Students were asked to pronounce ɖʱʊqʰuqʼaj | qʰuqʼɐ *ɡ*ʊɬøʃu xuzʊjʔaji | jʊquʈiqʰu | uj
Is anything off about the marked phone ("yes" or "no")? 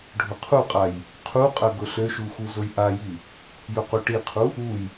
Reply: no